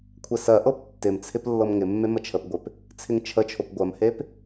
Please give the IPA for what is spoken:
kʷʰ ɛ s ɜ ʔ ɤ p tː ɪ m t͡sʰ ɪ p lː ɤ m ŋ ɪ mː e m ə t͡ʃʰ ə p ɡʷ ɪ p | t͡sʰ ɪ ŋ t͡ʃʰ ə t͡ʃʰ o p ɡʷ ɜ m h e p

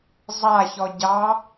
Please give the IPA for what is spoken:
zˤ a ç ɔ ɟ ɑ

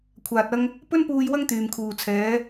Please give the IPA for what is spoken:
kʷʰ aː˨ t̚ ɐ˧ ŋ | p ɵ˥ n p uː˧ j w ɐ˥ ŋ t̪ yː˨ m kʰ uː˨ t͡sʰ ɛː˨˧

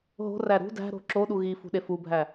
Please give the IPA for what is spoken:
ɦ o̤ r æ ɾ ṳ d æ̤ ɾ o̤ ǁ o ɗ u ɣ i f ṳ ɗ e f u bʱ æ

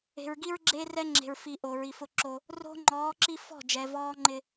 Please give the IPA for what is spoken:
e̤˨ ɹ ɡ i˦ ɹ ɡ͡ǁ eː˦ r ɛ˦ ŋ͡ǁ e̤˨ ɹ f i˨ ʔ o˨ ɹ i˨ f ʊ˦ ǁ o˦ | r o̤˦ ŋ͡ǃ ɔː˨˦ ǁ i˦ f ɔ̤˦˨ d͡ʒ ɛ˨ v ɔː˦ ŋ͡ǃ ɪ˦

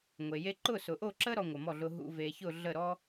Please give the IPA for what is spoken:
ŋʷ e˨ j e˦ ǃ ʊ˥˨ s ʊ˨ ʔ o˥˨ ǁ ə˦ ɾ ɔ˦ ŋʷ ə˨ m ɔ˥˨ ɮ ʊ˦ ɦ ṵ˦ v e˨ ç ʊ˥˨ ɮ ə˥˨ ɾ ɔ˦

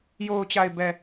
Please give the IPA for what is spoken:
j o˨ ʊ̯ t͡ɕ a˨ ɪ̯ b ɛ˨

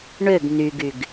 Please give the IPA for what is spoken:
ɳ ø ɡ n y ɡ y ɡ

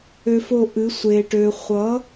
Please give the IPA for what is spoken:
ø˦ f o˦˨ ʔ ɨ˨˦ sʷ eː˨ ʈ øː˨ χʷ ʌ˨˦

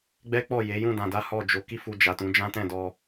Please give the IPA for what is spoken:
ɡ͡b ɛ˦ k͡p ɔ˦˨ j e˨˦ j ũ˦˨ d ã˧ d a˦ h ɔ˦˨ d͡ʒ o˧ k i˦ f u˧ d͡ʒ a˨ t ũ˨˦ d͡ʒ ã˦ t ɛ̃˦˨ d ɔ˧

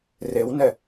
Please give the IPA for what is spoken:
r e w n ɛ

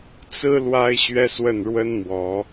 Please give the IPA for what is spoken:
t͡s ɹ̩˥ l w a˥ ɪ̯ ɕ ɥ ɛ˥ s w ə˥˩ n ɻ w ə˥ n m w ɔ˧˥

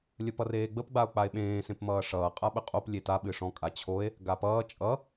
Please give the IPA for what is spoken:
lʲ ə p ʌ r eː ɡ͡b ə p ɡ͡b a o̯ k͡p a e̯ ɓ ẽː s ẽ p m ʌː ʂ ʌː qʼ a ɓ ə qʼ o p lʲ e t a ɓ ɨ ʂ ɔ̃ kʼ a t͡ɕʰ o e̯ | ɡ a p ʌː t͡ʃʼ ʌ

